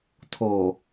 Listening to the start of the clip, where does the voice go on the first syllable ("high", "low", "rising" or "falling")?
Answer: low